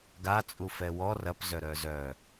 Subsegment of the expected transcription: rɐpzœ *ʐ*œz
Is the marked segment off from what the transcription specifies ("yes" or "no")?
yes